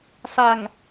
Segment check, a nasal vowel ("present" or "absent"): absent